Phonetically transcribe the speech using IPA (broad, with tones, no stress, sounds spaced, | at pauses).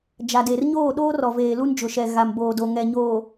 d͡ʒ a˨ d e˨ r ɲ oː˦˨ ɗ oː˦ r ɔ˨ v eː˨ l u˦ n d͡ʒ ʊ˨ ʃ ɛ˨ ɣ a˨ m b oː˨ d o˨ ŋ ɛ˨ ɲ oː˨